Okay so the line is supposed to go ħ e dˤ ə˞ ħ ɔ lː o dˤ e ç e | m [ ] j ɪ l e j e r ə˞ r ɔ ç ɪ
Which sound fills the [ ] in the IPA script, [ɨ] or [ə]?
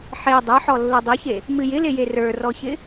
ɨ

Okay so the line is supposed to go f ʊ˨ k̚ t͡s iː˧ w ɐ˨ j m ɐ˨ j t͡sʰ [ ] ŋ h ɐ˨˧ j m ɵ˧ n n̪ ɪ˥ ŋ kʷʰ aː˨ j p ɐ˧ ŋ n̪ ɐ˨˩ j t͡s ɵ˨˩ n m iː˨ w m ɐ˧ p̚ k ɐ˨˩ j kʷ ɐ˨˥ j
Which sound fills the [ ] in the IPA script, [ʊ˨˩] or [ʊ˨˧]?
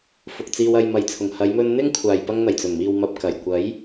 ʊ˨˩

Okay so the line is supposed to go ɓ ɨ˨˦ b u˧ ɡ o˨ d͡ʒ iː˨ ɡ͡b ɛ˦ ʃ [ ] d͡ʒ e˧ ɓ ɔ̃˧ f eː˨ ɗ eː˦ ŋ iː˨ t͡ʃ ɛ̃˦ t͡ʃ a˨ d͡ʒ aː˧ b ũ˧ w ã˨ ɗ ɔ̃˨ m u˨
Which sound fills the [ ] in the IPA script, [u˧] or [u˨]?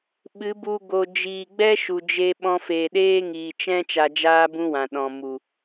u˨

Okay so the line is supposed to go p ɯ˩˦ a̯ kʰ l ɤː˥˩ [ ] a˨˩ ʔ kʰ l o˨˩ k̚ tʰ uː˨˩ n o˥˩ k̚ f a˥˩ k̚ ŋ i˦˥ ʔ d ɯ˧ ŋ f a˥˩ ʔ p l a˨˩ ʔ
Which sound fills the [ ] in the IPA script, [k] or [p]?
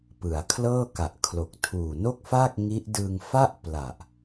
k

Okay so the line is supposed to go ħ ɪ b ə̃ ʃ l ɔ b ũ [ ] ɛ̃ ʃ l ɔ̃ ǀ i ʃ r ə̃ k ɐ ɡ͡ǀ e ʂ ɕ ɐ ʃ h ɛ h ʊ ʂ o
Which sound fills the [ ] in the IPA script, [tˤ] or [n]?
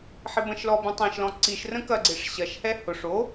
tˤ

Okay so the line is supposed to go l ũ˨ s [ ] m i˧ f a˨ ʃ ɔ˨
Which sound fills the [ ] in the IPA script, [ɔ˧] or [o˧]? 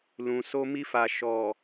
o˧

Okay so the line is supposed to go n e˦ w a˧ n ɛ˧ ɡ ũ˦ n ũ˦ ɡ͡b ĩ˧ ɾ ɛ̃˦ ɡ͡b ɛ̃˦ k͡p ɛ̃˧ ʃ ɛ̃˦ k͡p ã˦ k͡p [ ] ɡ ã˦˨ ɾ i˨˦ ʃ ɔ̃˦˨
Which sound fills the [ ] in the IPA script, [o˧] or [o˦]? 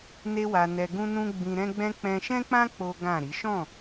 o˦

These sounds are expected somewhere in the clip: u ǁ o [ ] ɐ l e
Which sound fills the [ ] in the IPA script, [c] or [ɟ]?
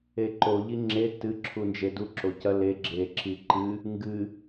c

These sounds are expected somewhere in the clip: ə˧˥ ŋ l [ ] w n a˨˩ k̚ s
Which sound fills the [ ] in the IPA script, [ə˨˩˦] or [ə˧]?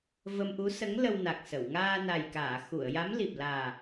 ə˧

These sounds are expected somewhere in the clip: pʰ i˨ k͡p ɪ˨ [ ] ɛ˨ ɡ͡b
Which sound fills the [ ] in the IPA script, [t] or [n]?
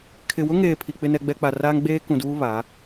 n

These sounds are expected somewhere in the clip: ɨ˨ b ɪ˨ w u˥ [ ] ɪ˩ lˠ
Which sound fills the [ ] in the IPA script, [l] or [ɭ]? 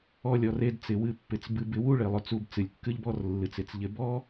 ɭ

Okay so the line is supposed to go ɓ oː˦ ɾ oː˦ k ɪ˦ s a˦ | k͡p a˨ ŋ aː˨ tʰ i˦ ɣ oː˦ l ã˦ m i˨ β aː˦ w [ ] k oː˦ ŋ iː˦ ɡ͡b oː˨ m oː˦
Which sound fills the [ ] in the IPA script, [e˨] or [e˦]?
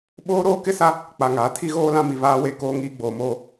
e˦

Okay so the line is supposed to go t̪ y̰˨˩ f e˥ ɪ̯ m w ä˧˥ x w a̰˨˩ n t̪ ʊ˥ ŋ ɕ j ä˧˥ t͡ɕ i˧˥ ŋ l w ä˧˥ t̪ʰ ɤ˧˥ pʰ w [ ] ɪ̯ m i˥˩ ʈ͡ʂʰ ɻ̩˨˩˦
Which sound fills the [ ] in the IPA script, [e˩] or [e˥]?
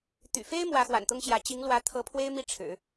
e˥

